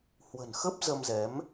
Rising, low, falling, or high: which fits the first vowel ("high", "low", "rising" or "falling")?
low